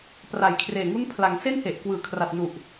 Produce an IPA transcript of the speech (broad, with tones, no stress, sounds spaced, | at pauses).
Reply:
p r a˨˩ j kʰ r eː˨˩ ŋ u˦˥ n pʰ l a˩˦ ŋ s e˥˩ n h e˨˩ ʔ k w ɯː˩˦ kʰ r a˨˩ t̚ n u˨˩ ʔ